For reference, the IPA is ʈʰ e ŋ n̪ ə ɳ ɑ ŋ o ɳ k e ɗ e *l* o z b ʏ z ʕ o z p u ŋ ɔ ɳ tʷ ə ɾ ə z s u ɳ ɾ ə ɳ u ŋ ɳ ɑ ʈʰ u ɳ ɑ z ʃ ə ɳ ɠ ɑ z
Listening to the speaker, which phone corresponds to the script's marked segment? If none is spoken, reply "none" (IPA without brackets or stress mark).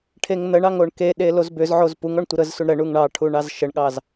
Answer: l